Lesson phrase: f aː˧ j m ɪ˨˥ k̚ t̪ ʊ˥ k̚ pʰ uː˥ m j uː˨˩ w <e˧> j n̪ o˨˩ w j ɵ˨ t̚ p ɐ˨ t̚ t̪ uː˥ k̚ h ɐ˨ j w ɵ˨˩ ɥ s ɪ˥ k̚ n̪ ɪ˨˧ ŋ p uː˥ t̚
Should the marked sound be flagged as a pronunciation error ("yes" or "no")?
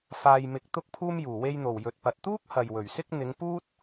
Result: no